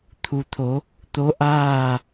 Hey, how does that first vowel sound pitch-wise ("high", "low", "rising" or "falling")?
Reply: low